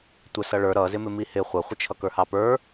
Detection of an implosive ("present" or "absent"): absent